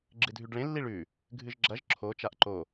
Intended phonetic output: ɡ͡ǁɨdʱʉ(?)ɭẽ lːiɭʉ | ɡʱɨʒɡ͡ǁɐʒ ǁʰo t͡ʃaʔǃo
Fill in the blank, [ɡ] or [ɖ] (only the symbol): ɖ